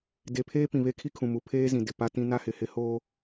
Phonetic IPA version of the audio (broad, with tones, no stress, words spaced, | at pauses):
de˨pʰeː˦ pĩ˨βe˦kʰi˦kʰũ˨ mu˨pʰeː˦zĩ˨ dɪ˨pa˦tĩ˦ na˦hɪ˨hɪ˦ hoː˦